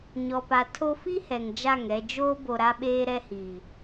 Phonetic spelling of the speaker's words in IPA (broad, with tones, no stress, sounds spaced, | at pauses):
ɲ ɔ˨ p a˨ tʰ o˦ f i˦ h ɛ˨ ŋ d͡ʒ a˦˨ ŋ ɛ˨ d͡ʒ oː˦ b o˨ ɾ a˦ ɓ eː˦ ɾ ɛ˦ h i˨